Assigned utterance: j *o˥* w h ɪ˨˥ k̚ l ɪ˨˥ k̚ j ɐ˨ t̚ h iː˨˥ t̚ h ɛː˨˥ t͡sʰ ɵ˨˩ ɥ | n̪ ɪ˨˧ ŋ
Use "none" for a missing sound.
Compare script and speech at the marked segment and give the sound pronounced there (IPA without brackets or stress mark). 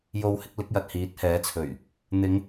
o˧